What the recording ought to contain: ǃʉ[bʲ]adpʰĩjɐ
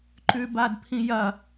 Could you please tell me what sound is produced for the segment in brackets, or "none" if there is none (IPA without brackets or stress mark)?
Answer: b